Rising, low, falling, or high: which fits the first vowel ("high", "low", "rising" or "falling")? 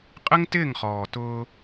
high